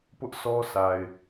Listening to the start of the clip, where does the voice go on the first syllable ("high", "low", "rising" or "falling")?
high